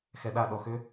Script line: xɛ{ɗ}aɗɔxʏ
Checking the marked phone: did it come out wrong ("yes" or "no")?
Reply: no